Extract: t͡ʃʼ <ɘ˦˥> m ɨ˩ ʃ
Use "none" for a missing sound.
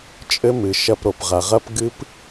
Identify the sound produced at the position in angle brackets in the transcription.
ɘ˦˥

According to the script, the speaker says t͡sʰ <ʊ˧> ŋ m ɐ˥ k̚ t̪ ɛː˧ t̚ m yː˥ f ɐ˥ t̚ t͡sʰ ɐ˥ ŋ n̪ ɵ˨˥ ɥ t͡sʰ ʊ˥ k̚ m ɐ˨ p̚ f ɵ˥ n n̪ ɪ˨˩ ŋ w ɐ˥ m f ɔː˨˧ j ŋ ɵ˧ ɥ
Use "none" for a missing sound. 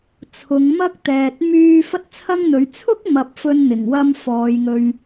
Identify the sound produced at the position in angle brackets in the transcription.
ʊ˨˧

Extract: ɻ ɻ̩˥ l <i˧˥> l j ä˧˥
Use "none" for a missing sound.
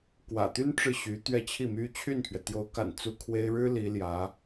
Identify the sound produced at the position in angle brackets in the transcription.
i˧˥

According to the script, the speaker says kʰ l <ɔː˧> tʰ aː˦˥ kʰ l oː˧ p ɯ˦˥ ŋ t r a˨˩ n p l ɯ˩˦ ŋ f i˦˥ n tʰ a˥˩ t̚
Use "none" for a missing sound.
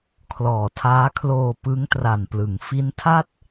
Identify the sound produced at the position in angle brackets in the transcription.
ɔː˨˩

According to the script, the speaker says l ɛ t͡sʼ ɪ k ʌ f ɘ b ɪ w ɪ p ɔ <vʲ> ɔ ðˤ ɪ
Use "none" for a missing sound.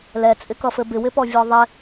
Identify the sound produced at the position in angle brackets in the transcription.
vʲ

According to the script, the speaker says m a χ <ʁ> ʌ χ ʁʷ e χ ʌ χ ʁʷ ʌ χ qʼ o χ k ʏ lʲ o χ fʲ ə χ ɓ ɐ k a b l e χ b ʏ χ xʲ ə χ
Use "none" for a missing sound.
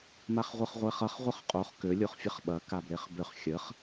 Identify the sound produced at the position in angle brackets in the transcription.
ʁʷ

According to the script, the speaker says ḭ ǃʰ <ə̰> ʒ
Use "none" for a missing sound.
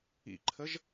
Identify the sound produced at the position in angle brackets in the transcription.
ə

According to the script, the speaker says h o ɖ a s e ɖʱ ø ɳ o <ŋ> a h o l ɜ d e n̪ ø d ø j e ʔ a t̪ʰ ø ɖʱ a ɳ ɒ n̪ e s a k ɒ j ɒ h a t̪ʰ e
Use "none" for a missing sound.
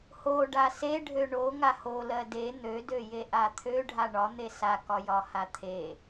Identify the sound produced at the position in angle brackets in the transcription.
ŋ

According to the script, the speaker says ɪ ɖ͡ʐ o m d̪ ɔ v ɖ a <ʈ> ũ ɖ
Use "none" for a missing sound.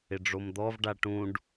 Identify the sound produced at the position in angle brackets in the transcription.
ʈ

